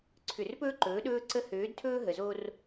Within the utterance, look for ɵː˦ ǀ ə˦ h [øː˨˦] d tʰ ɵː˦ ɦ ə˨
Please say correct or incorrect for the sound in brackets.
correct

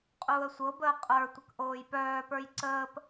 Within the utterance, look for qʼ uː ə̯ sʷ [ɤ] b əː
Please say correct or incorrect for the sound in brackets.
correct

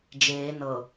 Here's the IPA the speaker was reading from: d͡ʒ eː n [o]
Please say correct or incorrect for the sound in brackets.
incorrect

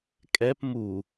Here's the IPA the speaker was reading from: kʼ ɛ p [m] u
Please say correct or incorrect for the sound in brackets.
correct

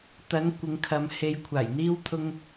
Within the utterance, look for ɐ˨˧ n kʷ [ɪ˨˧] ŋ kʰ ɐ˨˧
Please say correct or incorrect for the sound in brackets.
correct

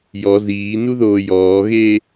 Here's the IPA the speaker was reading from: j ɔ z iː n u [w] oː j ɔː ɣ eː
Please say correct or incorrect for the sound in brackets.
incorrect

